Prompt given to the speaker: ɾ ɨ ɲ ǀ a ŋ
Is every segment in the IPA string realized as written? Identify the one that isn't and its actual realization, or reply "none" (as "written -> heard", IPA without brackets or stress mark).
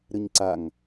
none